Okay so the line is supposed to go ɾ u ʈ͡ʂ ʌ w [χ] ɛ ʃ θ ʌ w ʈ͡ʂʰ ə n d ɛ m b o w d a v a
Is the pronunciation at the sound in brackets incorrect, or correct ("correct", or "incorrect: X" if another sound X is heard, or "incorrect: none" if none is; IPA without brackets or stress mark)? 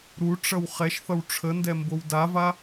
correct